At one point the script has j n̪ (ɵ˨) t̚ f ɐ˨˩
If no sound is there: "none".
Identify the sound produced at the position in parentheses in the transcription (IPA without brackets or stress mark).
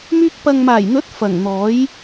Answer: ɵ˨˥